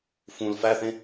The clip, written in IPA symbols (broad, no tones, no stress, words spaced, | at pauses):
fũl fæθẽ